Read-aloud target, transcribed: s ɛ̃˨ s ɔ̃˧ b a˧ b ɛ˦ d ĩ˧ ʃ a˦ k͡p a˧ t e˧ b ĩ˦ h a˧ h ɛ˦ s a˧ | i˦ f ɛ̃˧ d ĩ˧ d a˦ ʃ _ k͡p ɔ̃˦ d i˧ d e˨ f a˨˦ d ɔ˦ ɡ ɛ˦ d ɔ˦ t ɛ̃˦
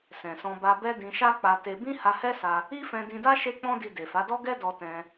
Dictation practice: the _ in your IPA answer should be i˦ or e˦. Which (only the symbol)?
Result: e˦